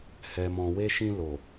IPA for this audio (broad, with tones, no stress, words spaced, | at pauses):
hɛ˨mɔ̃˨we˧ʃĩ˧ lo˨